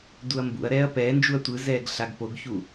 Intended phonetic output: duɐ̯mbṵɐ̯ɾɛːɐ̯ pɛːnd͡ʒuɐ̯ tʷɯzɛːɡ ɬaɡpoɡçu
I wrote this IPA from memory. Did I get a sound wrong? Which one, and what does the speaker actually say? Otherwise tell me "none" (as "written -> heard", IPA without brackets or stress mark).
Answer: none